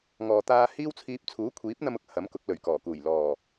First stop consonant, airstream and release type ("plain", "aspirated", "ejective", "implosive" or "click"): plain